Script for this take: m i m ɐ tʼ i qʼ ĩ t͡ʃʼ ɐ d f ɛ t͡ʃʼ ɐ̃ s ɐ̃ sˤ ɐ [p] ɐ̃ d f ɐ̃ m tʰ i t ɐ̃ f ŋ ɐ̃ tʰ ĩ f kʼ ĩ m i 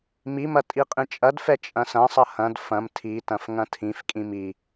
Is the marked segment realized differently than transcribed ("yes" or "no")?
yes